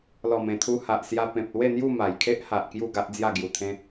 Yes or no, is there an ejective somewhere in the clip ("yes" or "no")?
no